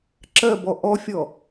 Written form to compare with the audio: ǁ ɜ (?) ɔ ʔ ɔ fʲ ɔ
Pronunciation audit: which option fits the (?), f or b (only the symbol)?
b